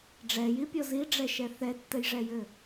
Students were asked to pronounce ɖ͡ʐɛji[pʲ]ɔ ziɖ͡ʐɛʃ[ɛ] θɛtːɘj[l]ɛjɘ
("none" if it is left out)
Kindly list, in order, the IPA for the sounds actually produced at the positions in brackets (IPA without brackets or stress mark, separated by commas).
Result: pʲ, ɛ, ʐ